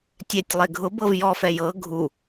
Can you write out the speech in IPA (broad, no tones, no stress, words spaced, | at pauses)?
tʲɛtʲlˠe ɡʱʊ bɤvjɔfɛ jɤ ɡʱu